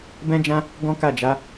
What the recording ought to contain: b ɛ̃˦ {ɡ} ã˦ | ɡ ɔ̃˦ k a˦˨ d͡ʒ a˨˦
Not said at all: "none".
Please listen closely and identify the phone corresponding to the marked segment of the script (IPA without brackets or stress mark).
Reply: d͡ʒ